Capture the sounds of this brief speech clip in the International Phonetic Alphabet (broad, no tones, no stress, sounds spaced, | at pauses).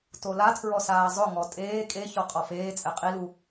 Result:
t o l a tʰ ɹ ɔ s aː zˤ ʊ ŋ ɔ tʼ eː kʼ e ç ɔ qʼ ɔ f eː t͡sʼ ɛ qʼ i l u